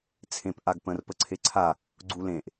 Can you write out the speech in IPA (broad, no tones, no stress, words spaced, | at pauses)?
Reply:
t͡sʰẽp ʔaɡpə̃r pəǀʰeǀʰa | ɡ͡ǀulẽʔ